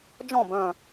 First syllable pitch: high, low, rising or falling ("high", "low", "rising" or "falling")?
falling